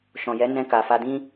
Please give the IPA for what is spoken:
ʃ ɔ̃˨ j ɛ˨˦ n ɛ̃˧ k a˨ f a˧ d ĩ˦

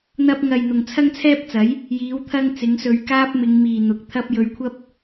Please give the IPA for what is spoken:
n̪ ɐ˧ p̚ ŋ ɐ˨ j n̪ ʊ˨ ŋ t͡sʰ ɐ˥ ŋ t͡sʰ ɛː˥ p̚ t͡s ɐ˨˥ j | j iː˨˥ w t̪ʰ ɐ˥ ŋ t͡s ɪ˨˥ ŋ s ɵ˧ ɥ k aː˥ p̚ m ɪ˨˧ ŋ m iː˨ n̪ ʊ˨ k̚ t̪ʰ ɐ˥ p̚ j ɵ˧ ɥ kʷʰ ɐ˥ p̚

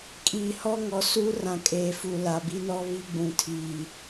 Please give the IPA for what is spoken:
kʼ iː˨ h ɔ˦ ŋ ɔ˨ s uː˦ r ã˨ kʼ eː˨ f u˨ l a˨ b i˦ n ɔ˦ β i˦ ɡ͡b ũ˨ tʰ iː˨

